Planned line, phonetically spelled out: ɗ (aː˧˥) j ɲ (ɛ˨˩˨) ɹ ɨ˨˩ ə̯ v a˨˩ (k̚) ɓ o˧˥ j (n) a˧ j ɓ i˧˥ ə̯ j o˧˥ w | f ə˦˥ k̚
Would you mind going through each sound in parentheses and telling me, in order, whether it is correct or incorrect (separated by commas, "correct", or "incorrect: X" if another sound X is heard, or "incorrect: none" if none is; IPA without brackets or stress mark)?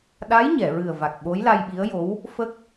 correct, correct, correct, incorrect: l